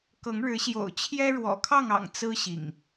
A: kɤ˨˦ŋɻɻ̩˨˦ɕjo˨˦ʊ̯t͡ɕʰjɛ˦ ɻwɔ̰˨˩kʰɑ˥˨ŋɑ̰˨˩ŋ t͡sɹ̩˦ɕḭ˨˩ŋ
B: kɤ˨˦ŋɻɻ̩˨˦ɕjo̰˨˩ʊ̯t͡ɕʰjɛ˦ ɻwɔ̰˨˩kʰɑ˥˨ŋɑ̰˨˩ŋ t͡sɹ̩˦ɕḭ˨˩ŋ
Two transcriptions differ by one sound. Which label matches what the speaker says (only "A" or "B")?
B